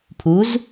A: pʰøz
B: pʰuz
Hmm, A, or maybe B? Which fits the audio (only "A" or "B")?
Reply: B